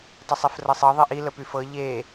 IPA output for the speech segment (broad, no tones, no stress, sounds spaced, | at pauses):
tˤ y sˤ i f r ɤ sˤ ɤ ðˤ i ʔ i l ə p y f ɤ ʎ e